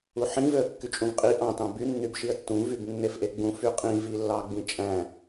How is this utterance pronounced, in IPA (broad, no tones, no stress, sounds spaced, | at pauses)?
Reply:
u ħ ĩ v ø ə̯ kː y t͡ʃʼ ũ v qʼ i ʔ ɑ̃ t ɑ̃ b y nː y b ʃ i ə̯ tː ũ v y b nː e f ʔ e ɡ͡b ũ f y qʼ ĩ v i lː ɑ ɡ͡b ĩ t͡ʃʼ æ̃